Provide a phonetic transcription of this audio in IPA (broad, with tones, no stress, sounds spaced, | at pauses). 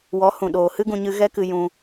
w ɔ˨˦ h ũ˨ ɗ oː˨ h ɨ˦ ɡ ũ˧ ɲ ɨ˧ ɣ ɛ˦ k ɨ˧ j ũ˧